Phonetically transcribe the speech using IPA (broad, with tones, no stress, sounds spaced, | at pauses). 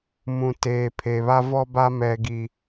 m ũ˨ t eː˨ pʰ e˨ β a˦ v ɔ˦ b a˦ m ɛ˦ ɡ i˦